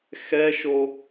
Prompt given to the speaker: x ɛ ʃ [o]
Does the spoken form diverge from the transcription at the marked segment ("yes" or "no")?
no